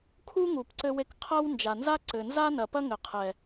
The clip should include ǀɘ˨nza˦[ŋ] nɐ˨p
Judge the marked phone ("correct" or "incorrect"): incorrect